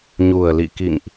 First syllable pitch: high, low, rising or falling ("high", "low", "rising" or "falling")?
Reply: low